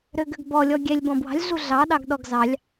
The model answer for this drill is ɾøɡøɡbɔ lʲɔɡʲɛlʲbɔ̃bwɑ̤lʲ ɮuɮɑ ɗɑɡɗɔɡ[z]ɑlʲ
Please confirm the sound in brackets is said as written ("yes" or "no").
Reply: yes